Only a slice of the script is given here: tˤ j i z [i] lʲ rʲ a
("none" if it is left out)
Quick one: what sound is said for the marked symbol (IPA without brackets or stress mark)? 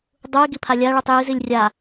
i